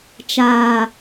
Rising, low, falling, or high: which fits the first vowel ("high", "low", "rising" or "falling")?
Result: low